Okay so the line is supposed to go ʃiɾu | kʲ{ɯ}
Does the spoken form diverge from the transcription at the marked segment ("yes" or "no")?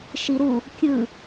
no